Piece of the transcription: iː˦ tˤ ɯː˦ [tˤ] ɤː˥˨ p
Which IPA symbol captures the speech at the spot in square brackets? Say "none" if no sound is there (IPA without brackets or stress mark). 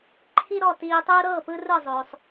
ɾ